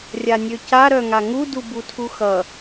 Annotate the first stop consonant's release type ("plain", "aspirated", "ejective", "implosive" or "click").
plain